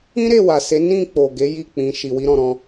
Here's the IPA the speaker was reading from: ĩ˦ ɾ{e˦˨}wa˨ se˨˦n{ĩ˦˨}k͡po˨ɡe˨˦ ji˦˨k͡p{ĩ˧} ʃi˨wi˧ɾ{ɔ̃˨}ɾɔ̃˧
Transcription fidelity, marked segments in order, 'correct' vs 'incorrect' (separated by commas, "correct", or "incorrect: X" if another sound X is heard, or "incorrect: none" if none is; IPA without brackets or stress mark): correct, correct, correct, correct